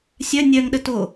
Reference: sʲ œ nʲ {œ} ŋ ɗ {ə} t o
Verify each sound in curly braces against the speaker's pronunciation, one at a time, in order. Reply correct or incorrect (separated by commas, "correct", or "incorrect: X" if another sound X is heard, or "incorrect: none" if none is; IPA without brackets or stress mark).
correct, correct